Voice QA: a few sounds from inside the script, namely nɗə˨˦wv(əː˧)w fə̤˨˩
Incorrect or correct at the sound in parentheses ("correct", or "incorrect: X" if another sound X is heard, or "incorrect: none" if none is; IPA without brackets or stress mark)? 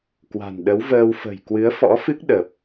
correct